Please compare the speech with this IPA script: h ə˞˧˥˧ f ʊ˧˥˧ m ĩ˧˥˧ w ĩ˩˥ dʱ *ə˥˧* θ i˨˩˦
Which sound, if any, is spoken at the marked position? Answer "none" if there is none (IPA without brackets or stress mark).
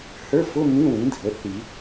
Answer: ə˩˥